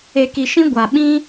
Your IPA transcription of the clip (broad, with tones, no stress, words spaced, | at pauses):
e˧ki˧ʃĩ˦ ɡʷa˧ɓĩ˦